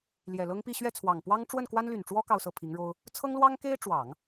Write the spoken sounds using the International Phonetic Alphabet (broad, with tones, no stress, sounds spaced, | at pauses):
l j ɛ˨˩ l ɤ˥ ŋ p i˥˧ ɕ ɥ ɛ˥˩ t͡sʰ w ɑ˨˩ ŋ p w ɑ˥ ŋ ʈ͡ʂ w ə˥˩ n k w a˥ n l y˨˩ n ʈ͡ʂ w ɔ˥ k ɑ˥˧ ʊ̯ s ɤ˥˩ pʰ i˧˥ ŋ ɻ o˥ ʊ̯ | t͡sʰ ɤ˥ ŋ l w ɑ˥ ŋ k e˥ ɪ̯ ʈ͡ʂ w ɑ˨˩˦ ŋ